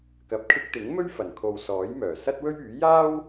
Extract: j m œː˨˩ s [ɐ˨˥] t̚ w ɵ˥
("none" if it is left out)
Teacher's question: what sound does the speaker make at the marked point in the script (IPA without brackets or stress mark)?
ɐ˥